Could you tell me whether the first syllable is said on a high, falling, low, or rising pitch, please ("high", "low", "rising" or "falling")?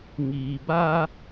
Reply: low